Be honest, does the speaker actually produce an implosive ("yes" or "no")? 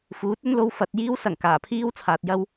no